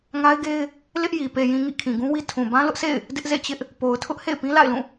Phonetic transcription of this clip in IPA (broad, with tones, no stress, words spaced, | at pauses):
ŋa˦ɪ̯ɡe˦ɪ̯ | lɪ˦ʔji˨ pe˨jĩ˨ŋḭ˦˨ kʰĩ˨ɡũ˦wi˦ tʰũ˨ bã˦lʊ˦ʔsʰḛ˦˨ɪ̯ | dɪ˦ʔzḛ˦˨t͡ɕɪ˦ʔ | po˨ʊ̯tʰʊ˦ʔ hḛ˦˨ɪ̯pĩ˦la̰˦˨ɪ̯lũ˦˨